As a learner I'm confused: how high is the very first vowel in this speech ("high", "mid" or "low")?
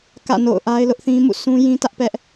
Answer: low